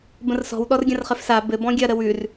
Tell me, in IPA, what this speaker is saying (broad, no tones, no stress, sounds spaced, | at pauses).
b ə̃ r s ɔ̤ w ɗ ɔ r ɡʲ ɐ̃ r χ ɘ f s a b ɘ b ɔ̃ ɡʲ ɐ ɾ ə w ʉ r